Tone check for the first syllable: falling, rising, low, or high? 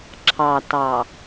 low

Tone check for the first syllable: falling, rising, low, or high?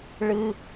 high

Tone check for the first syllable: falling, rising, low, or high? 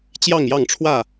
falling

